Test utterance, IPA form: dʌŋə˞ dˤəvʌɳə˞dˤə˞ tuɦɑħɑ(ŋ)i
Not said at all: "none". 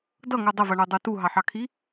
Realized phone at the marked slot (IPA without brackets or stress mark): kʰ